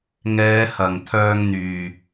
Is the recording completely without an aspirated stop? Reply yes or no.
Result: no